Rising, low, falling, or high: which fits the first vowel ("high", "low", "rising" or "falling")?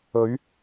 rising